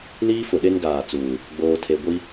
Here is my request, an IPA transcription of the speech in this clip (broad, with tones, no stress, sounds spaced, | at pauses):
l iː˦ f ʊ˨ ɗ e˦ n ɡ aː˨ t͡s uː˨ | ɡ͡b oː˨ tʰ e˨ ɡʷ i˦